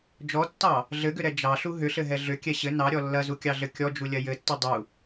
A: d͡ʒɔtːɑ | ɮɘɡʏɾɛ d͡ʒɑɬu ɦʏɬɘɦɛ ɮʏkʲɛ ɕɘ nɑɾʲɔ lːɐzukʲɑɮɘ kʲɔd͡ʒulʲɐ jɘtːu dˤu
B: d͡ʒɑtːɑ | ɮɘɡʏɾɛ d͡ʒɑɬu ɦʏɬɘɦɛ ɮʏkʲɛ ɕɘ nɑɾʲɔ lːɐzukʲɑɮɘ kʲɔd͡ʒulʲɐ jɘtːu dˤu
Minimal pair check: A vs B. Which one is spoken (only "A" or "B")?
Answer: A